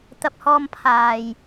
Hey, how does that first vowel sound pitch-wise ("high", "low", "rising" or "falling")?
low